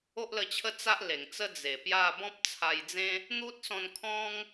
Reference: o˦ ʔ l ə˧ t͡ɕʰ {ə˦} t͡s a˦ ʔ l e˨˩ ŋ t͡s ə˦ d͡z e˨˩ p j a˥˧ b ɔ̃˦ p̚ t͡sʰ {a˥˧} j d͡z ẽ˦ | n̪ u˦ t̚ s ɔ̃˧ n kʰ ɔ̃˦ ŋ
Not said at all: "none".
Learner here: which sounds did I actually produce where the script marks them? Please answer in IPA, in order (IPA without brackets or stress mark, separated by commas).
ə˦, a˧